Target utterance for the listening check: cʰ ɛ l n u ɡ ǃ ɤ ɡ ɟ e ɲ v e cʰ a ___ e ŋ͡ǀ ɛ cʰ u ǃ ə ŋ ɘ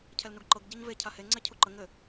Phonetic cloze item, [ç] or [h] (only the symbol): h